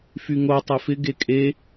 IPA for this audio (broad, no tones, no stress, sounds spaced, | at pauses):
f y ŋ o tˤ e f ɪ ɡ e kʼ e